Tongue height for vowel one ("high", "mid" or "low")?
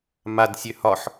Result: low